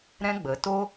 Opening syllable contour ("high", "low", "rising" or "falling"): high